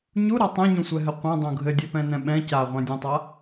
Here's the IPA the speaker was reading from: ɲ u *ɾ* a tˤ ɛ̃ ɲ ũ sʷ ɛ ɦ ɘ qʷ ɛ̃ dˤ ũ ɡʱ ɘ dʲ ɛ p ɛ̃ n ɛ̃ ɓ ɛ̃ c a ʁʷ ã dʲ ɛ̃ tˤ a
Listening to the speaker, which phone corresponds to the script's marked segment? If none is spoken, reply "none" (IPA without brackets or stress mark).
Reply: ɾ